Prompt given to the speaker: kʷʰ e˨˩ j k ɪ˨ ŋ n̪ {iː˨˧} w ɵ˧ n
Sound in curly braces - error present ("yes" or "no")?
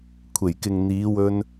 no